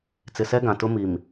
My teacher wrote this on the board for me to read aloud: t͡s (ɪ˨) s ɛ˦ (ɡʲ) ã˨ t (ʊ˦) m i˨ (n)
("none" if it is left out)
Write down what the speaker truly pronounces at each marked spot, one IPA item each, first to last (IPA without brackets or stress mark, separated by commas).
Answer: ɪ˨, ɡ, ʊ˦, m